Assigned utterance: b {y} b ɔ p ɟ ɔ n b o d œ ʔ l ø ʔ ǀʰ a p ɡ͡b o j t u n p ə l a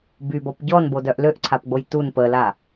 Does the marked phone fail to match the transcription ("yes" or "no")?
no